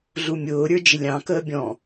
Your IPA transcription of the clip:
ɮumʲʊːɾʲə˞ d͡ʒɪlʲɑ̃kəː bʲɔ̃

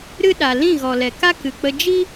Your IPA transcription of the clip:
ɾɨ˦ ɗa˨ lĩ˦˨ɣɔ˨lɛ˨ka˦ kɨ˨k͡pə˧ d͡ʒi˦

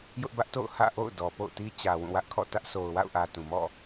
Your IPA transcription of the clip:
jʊ˦ʔbä˦ʔto̰˦˨ʊ̯hä̰˦˨ ʔo̰˦˨ʊ̯dɔ˨ po̰˦˨ʊ̯ti˦ t͡ɕä˨ wũ˦˨wä˦ʔkʰɔ̰˦˨ tä˦ʔso˨ʊ̯wa̰˦˨ʊ̯ʔä˨ tũ˨mɔ̰˦˨

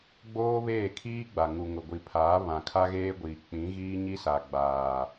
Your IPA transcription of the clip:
ɡ͡boː˦βeː˦˨kʰiː˦ɡ͡ba˨ ŋu˨ŋʊ˨ ɡʷi˨pʰaː˨˦ βã˨ kʰa˦ɣeː˦ɡʷiː˨ k͡pĩ˨˦ɣiː˦ɲi˦ sa˨ɡ͡baː˨

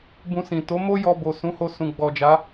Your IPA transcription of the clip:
bũ˧sĩ˨ to˨˦mo˦ jɔ˧ bo˨sũ˨˦ho˧ sũ˨ɡ͡bɔ˨d͡ʒa˨˦

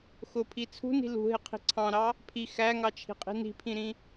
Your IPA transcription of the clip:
xʊpʰi t͡sʰṳni̤ lṳɦɪqʰi̤ ǀʰɑ̃ɾɑ | pʰi xæŋɑt͡ʃʰi̤qʼi̤ ni̤pʰĩɾĩ

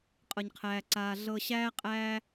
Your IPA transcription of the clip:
qʼɤ˧ɲqʰæː˧ǀaː˧ ɮɤ˧ ɕæː˥qʼæː˥

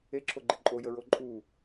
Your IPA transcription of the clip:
eǁʰoɡ͡ǃɘ ǃʼojəɹo ǃʼu

